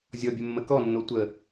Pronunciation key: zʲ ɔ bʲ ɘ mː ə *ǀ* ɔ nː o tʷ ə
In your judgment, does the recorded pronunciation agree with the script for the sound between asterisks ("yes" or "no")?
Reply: no